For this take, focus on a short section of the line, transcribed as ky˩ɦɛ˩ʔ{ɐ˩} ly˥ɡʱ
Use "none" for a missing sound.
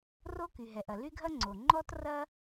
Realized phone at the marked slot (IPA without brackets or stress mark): ɐ˩